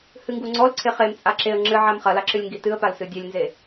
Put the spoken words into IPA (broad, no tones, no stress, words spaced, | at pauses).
hɨŋɡuŋ͡ǀɔl ǀʰeχemt͡sʼa ǁeə̯ ŋ͡ǁɨʕam χɐlaǁɨlʲ ŋɡitɨə̯pal sɨdʲɛlʲnze